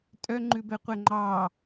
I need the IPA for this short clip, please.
tʼ œ ŋ͡ǃ ʉ b ɛ qʷ ɛ ŋ͡ǃ ɑ

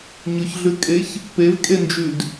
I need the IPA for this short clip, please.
ɲ ʊ ç ɮ ʉ kʼ e ç | p e v kʼ e n d͡ʒ ʉ d

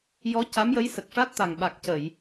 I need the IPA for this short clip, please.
j ɔ˧˥ c a˧˥ m j ə˧˥ j s ə˨˩ k̚ ʂ a˦˥ t̚ t̪ a˨˩ ŋ ɓ a˨˩ k̚ c ə˨˩˨ j

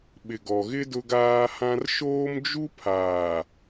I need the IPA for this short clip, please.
ɓ ɪ˨ ɡ ɔ˨ ɣ ɪ˦ d ʊ˦ ɡ aː˦ h ã˦ r ʃ oː˦ m d͡ʒ u˦ pʰ aː˨

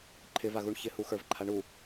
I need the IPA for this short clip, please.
ǃʰ ɪ v a ɣ u ɳ ç ɪ h u x ə˞ v ǃʰ a ɳ u

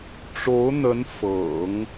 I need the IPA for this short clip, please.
ʈ͡ʂ o˧˥ ʊ̯ n̪ ə˧˥ n f ɤ̰˨˩˦ ŋ

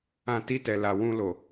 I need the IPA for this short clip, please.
ã˧ t i˧ t ɛ˨ l a˨ w ũ˧ l o˨

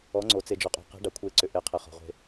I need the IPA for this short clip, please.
ɔ˩˧ ŋ͡ǀ o˩ t͡s e˩ d͡ʒ ɔ˩ qʼ o̤˩ q e̤˩˧ ɖ a˩ kʷʰ e˩˧ ǀ ʏ˩ ʔ e˩˧ qʰ e˩ χ ɔ̤˩ ʁʷ e̤˩

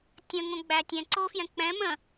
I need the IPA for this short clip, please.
tʲ ə̃ ŋ õ ɡ͡b æ tʲ ɛ̃ ǀ o f j ɛ̃ k͡p ɛ̃ m ə̃

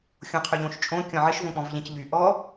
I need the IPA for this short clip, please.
xʲ õ qʰ ʏ ʎ õ ʃ t͡ʃʼ õ kʲ ɔ̃ ʕ ɪ ʃ v õ k͡p ɔ̃ v ʎ ɛ̃ c ʎ y ʔ ɔ

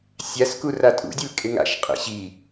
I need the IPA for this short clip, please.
sʲ a s k u r a tʼ ṵ dʲ e l kʼ ɪ ŋ a̰ ʃ qʼ ḛ ɕ i

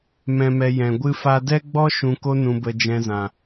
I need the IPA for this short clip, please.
m ɛ̃˨ m ɛ˨ j ɛ̃˨ ɡʷ ɨ˦ f a˦ d ɛ˦ ɡ͡b ɔ˦ ʃ ũ˨ k o˧ n ũ˨ b ə˨ d͡ʒ ɛ̃˧ z ã˨

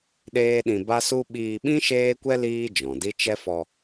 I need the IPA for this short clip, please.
ɗ eː˦ ɗ ĩ˧ b a˦ s u˦ ɓ iː˧ ɓ ĩ˦ ʃ eː˦ kʷ ɛ˦ l iː˦ d͡ʒ ɔ̃˨ d i˦ t͡ʃ ɛ˦ f ɔ˧

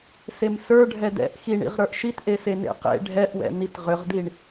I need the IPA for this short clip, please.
s e m s ə˞ ɖʱ ɛ d ɛ̰ ʔ x i ɳ ḭ ʁ ɾ ə˞ ʔ ʃ i t ʔ e s e n ḛ q ḛ ɖʱ ɛ ʔ w ɛ̰ n i t ʁ ʏ ʁ d i ɳ

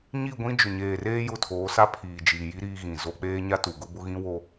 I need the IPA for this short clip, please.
ɲ i˦˨ ɡʷ ĩ˦ d͡ʒ ʊ˨ ɲ eː˨ r eː˦ j ʊ˦˨ tʰ oː˨˦ s a˦ pʰ iː˨ d͡ʒ iː˨ j i˦ ɾ iː˦ ɣ ĩ˨ z o˦ k͡p eː˦ ɲ a˦ t u˨ ɡ ʊ˦ b ʊ˦ ɣ ĩ˦ w o˦

